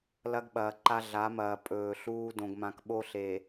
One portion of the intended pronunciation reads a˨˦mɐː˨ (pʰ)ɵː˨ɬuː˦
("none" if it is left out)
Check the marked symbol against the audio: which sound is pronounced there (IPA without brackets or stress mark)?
pʼ